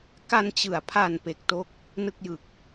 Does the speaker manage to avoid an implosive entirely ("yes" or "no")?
yes